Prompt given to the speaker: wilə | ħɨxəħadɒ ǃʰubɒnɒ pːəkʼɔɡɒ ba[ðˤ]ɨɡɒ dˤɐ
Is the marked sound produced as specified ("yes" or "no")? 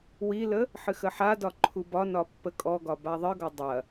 yes